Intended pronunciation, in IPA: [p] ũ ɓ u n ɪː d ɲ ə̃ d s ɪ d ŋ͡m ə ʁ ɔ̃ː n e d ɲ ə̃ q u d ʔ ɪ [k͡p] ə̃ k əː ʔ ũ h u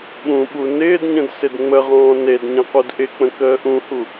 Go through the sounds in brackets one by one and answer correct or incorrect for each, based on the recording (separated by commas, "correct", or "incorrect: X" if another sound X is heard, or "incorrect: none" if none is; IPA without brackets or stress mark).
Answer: incorrect: ɓ, correct